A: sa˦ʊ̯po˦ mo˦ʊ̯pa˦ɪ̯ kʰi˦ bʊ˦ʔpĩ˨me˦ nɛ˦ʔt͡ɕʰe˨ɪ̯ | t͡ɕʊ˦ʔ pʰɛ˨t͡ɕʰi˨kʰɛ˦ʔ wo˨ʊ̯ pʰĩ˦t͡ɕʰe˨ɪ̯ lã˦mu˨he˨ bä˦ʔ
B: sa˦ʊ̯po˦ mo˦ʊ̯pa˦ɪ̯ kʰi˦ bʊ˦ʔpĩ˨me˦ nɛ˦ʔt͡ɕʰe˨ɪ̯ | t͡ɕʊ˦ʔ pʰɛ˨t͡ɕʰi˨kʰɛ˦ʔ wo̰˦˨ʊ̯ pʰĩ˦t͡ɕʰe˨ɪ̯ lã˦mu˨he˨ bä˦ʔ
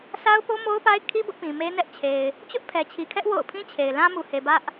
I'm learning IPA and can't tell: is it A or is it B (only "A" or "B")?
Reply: B